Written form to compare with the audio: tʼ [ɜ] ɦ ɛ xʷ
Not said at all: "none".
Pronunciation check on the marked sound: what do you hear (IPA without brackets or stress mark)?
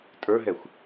ə˞